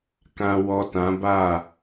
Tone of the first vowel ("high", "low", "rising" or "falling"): low